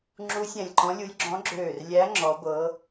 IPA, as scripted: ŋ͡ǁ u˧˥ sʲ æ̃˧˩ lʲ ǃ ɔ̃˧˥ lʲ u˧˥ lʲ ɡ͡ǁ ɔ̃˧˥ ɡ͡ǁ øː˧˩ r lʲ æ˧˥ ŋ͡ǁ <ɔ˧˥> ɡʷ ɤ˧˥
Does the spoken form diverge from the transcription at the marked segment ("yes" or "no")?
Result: no